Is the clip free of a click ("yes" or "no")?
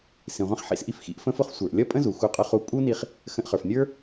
yes